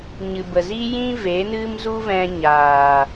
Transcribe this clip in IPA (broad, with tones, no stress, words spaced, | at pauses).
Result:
ɲɨ˨bə˨zi˦jĩ˦ ve˨˦nɨ˦m zu˦vɛ̃˧ɲaː˨